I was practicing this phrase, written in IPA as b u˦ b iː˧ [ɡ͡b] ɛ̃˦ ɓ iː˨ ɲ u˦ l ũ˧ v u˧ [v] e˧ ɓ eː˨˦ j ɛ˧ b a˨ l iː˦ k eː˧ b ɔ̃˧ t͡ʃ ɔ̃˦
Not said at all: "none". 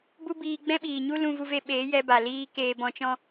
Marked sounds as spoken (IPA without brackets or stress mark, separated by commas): ɡ͡b, v